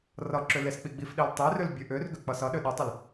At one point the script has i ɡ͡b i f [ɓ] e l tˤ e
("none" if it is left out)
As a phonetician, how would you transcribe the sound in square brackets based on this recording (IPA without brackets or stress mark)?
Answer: ɗ